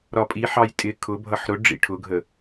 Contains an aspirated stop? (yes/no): yes